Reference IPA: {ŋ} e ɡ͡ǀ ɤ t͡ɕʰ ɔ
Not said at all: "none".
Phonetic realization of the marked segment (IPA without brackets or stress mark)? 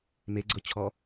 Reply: m